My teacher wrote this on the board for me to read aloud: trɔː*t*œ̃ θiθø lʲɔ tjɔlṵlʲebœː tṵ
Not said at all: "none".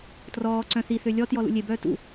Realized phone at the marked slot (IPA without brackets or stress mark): ǀ